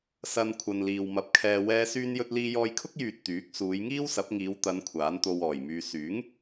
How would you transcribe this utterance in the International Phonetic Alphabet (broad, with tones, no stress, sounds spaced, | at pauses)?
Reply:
s ɐ˧ n kʷʰ ɐ˨ n l iː˨ w m ɐ˨ p̚ kʰ ɛː˨ w ɛː˧ s yː˧ n j ɵ˧ t̚ l iː˧ j ɔː˧ j kʰ ʊ˥ k̚ j yː˨ t̚ t̪ yː˨˥ k̚ s uː˨˧ j ŋ iː˥ w s ɐ˨˥ p̚ ŋ iː˨˧ w t̪ ɐ˨˧ n kʷʰ aː˨˥ n t̪ o˧ w ɔː˨˩ j m yː˧ s yː˨˥ ŋ